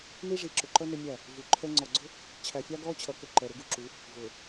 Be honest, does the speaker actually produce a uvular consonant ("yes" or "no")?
no